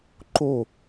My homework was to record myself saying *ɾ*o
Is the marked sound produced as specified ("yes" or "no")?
no